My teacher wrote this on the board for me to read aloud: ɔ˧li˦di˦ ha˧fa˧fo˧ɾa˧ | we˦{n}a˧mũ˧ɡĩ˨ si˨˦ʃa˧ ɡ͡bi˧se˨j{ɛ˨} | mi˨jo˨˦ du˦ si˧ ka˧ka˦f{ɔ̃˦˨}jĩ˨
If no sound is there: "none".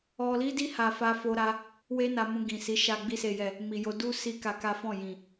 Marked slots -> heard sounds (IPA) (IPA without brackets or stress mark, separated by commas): n, ɛ˨, ɔ̃˦˨